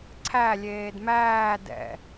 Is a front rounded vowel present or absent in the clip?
absent